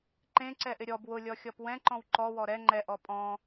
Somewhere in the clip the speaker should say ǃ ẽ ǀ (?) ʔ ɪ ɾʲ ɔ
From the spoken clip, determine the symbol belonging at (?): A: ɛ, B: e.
A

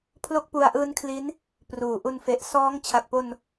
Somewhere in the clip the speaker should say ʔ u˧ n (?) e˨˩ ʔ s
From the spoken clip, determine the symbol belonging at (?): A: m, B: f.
B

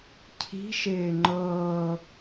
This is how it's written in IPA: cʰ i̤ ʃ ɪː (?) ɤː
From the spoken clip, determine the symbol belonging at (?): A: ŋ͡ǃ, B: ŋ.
A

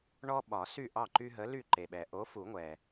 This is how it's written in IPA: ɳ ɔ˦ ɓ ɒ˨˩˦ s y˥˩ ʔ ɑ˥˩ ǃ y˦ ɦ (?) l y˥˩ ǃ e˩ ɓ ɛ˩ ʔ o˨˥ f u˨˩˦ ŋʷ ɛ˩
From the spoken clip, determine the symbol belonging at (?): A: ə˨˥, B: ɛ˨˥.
A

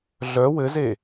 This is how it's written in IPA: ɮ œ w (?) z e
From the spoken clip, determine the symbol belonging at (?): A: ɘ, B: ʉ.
A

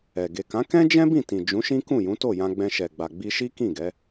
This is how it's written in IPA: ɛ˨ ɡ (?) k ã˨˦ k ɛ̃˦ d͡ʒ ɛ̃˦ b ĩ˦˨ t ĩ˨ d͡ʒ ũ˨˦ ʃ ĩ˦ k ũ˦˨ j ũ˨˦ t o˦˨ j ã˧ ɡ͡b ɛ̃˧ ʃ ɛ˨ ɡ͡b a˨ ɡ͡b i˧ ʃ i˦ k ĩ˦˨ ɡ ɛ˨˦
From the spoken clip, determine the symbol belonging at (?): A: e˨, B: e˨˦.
A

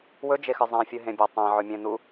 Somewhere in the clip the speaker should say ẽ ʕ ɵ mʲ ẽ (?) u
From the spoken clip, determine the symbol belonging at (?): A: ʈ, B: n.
B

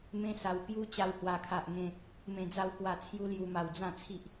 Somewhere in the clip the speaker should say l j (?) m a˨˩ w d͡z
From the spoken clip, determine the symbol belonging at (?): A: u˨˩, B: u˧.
B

